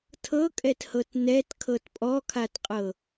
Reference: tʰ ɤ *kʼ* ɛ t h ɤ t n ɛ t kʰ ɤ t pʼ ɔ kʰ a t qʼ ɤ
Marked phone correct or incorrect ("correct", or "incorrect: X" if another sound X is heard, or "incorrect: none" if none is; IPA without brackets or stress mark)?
correct